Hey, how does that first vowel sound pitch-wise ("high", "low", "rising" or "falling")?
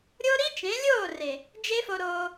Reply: high